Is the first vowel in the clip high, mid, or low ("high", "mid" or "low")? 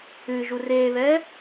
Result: high